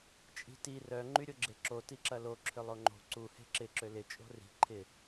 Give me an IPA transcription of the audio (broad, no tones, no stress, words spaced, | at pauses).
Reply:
t͡ʃʼi̤ti rœ ŋ͡ǃyɾʲoɡ͡ǁeǁo tiǁɐlo ǁʰʏlˠoŋ͡ǃo̤ ǀu he̤ǁɪ ǁølɪ t͡ʃʼo̤ri̤ ǃʰɪ